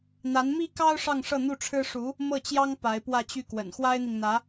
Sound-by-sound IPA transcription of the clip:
n̪a˧˥nmi˥kɑ˥ʊ̯ ʂɑ˥˧ŋʂɤ˥˧n̪u˥˩ʈ͡ʂʰɻ̩˥ ʂu˧˥ | mɤ˥˩t͡ɕjɑ˥ŋ pa˧˥ɪ̯pwä˥˧t͡ɕy˥˩kwə̰˨˩n xwa˥ɪ̯n̪i˨ŋ n̪ä˧˥

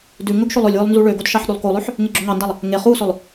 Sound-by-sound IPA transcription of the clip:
dʉ ŋɵɡʃolˠɵlʲwølˠ nzuɭøɡod ʃɑħɗʉlˠkolˠøħ | ŋeɡ͡ǁoŋɑndɑlˠ | ŋe χusɵlˠ

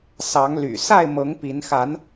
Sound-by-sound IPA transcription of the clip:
sɑ˨˦ŋly̰˨˩ sa˥˨ɪ̯mɤ˨˦ŋ pi˨˦n xa˨˦n

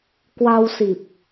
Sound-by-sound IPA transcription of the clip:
kwa˧w si˨˩p̚

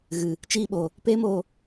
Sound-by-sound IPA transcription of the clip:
ɣɨ˨ | t͡ʃiː˧ɓo˨ | peː˦moː˧

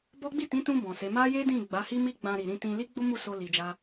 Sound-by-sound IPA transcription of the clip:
bɔ˦ ɡ͡bi˦˨tĩ˨˦tũ˧ bɔ̃˨se˨˦ ma˦je˦dĩ˦˨ ɡ͡ba˨˦hi˦ mi˦ɡ͡bã˧ ɾi˨ɾĩ˧ tĩ˧ li˦ɡ͡bo˦ mu˦˨so˧ li˨d͡ʒa˧

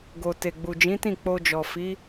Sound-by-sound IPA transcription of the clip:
ɡo˨ te˨ɡ͡bu˨d͡ʒĩ˨˦tĩ˦˨ k͡po˧d͡ʒɔ˨ fi˨˦

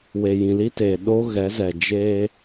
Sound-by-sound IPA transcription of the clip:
we˨jĩ˨li˦teː˨ ɗo˦ ɣɛ˨˦zɛ˨ d͡ʒeː˦

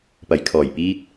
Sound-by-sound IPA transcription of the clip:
pɐ˨˩jkʰɔː˨˩jpiː˧t̚

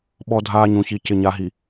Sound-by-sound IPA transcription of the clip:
ɓɔ˦dʱaː˦ɲũ˨ çi˨cɪ˨ ɲa˨ɦi˨

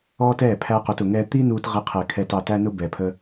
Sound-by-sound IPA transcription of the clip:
ɔː˦tɛː˦˨ pʰæ˧qu˨tʊ˨ŋɛː˧ t̪i˦nuː˧t ʁɪ˧qʰɛ˨ kʰɛ˧tɑ˧tæ˦nʊ˦ bɛ˨pʰə˧

